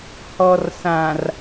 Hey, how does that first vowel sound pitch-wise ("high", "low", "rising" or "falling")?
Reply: low